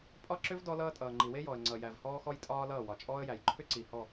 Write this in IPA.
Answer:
pʼ ɒ˦ ǁ ʏ˦ v d ɔ˦ l ʌː˦ tʼ ʌː˨ ŋ͡ǃ i˨ w e˦ j ɔ˨ ə̯ ŋ͡ǀ ʌ˨ j æ˨ v h ɔː˦ x ɔ˦ j tʼ ɒː˦ l ʌː˦˨ w ɒ˨ t͡ʃʼ ɔː˦ ə̯ j æ˨ j ǃʰ ʏ˦ ǀ i˨ h ɔ˦˨

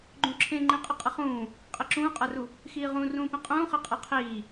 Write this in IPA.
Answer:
ɡ͡ǃ ũ ǁʰ ẽ ŋ͡ǃ ĩ qʼ ə qʼ ə χ ũː | qʼ e ǁ ũː qʼ a r u | x iː ʁ ũ r ũː p ĩ qʼ ũː χ ɛ qʼ ɤ qʰ iː

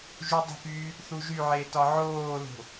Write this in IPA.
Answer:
ʒ u dˤ ə̤ p yː | θ u ʒ y ʕ e t ɒ ʕ oː l o̤

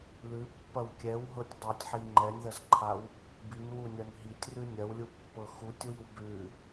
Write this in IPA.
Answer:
l ʉ pː ɐ w kʲ ɛ w ɦ ɤ tʲ dˤ ɛ tʲ ħ i ŋ͡ǃ ɛ nʲ ð ɐ z ǃʰ a w | b i n w u nʲ ɐ n ɦ i tʲ r ʉ nʲ ɐ w lʲ u pː ɤ x u tʲ w i w b ʉ

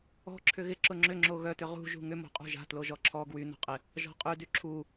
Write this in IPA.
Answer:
ɔ̤ ǁʰ ʏ ɣ ɪ ǁ ʊ ŋ͡ǁ ʏ ŋ͡ǁ o ɣ œ t ʏ ʁ ṳ ʒ ṳ ŋ ʏ m o̤ qʼ ṳ ʒ a̤ t l o ʒ ɔ ǁʰ ɔ ɡ w y n ɔ̤ qʼ ɪ | ʒ ɔ̤ qʼ y d y ǁʰ u

